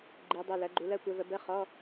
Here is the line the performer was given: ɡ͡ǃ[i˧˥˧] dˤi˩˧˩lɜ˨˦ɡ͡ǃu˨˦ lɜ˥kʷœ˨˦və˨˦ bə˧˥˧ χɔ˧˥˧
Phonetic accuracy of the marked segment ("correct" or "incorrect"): incorrect